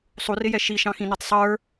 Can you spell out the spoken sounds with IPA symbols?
sˤ u r ɪ j ɛ ʃ i ʃ ɑ̃ x ĩ n u tˤ sˤ ə˞

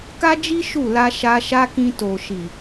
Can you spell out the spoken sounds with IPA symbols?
k a˦ d͡ʒ i˦ ʃ u˦˨ l a˧ ʃ a˧ ʃ a˦ k ĩ˧ t o˨ ʃ i˨

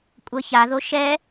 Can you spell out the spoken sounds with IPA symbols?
kʷʼ ɤ ç a ð o ʃ ɛ

